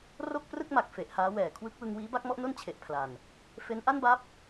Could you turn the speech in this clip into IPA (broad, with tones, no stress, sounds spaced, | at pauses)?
r o˥˩ k̚ p r ɯ˥˩ k̚ m a˨˩ k̚ f e˨˩ ʔ h aː˦˥ w ɛː˨˩ kʰ w ɯ˦˥ k̚ w ɯ˧ ŋ w iː˦˥ b a˥˩ k̚ m ɔ˥˩ ʔ n o˥˩ n t͡ɕʰ e˨˩ ʔ pʰ l a˨˩ n | f e˦˥ n ʔ a˥˩ n b a˦˥ p̚